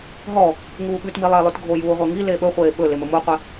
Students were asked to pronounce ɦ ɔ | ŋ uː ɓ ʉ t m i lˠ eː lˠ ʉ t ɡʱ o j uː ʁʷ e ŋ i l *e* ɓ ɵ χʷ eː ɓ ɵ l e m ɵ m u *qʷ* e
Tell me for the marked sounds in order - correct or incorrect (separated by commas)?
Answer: correct, correct